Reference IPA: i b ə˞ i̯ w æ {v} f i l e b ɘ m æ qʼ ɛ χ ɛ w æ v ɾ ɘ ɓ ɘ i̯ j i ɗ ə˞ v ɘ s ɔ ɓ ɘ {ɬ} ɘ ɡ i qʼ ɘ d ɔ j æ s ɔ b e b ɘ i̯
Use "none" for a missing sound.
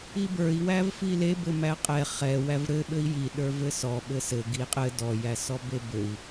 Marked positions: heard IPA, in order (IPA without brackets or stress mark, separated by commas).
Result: v, s